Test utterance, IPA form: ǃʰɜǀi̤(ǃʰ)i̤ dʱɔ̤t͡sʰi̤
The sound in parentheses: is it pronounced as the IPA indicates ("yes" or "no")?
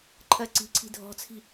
no